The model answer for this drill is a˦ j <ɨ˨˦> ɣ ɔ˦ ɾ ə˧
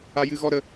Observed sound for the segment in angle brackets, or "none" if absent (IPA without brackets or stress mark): ɨ˦